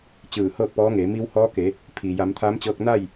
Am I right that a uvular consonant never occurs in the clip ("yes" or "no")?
yes